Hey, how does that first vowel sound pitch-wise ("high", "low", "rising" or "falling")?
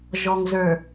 low